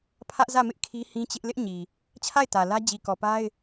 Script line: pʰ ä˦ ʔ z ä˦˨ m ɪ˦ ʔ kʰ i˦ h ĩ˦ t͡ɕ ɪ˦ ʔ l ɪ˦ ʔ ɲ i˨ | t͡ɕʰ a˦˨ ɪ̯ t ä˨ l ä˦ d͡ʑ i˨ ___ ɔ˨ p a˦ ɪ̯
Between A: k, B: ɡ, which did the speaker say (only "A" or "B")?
A